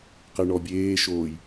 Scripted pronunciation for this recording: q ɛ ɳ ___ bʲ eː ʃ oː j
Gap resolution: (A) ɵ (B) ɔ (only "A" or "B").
B